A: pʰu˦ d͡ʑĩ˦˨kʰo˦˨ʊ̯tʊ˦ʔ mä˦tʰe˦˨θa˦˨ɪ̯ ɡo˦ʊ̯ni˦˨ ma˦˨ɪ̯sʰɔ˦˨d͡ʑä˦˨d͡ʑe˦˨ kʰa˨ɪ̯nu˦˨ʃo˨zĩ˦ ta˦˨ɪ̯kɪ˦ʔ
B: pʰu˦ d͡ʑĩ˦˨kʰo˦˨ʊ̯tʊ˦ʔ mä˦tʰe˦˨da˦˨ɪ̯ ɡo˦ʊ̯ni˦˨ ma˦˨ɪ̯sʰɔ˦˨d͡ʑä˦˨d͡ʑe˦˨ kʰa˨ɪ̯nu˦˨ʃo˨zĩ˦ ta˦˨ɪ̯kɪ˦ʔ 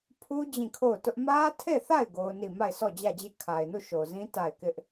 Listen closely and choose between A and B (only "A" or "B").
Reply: A